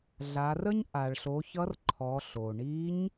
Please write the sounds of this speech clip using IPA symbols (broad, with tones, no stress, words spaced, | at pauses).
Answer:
ɮa˩˧rə˥ɲ ʔa˩ɭɬo˩˧ çʌ˧˥rǃʰɔ˩˧ ɬo˩ ɳi˧˥ɲ